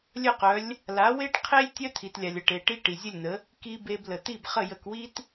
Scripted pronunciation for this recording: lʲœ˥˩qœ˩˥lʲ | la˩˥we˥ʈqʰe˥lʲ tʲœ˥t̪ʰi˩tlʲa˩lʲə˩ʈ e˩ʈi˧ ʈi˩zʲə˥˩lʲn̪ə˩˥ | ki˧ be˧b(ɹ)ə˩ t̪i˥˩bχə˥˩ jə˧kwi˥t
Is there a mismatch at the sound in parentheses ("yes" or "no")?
yes